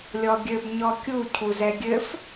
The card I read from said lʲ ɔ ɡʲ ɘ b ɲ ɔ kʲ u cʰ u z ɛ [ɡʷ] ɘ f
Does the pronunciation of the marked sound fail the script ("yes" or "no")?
yes